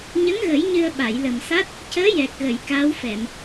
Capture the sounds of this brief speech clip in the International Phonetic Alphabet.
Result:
ɲ ə˧˥ ŋ ɣ ə˨˩˦ j ɲ ɨ˧ ə̯ ɓ a˨˩˨ j l ə˨˩ m s a˦˥ t̚ | c əː˧˥ j ɛ˨˩ k̚ ɣ ə˨˩˨ j k aː˧˥ w f ɛ˨˩˨ m

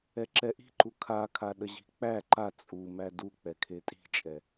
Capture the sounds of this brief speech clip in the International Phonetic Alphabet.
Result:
ɛ ǁ ɛ ʔ i̤ ǃ u kʰ a kʰ a ɗ ə ʑ i̤ k͡p æ ǃ a t͡sʼ u m æ d u k͡p ɛ kʰ e tʼ i̤ t͡ʃʼ ɛ

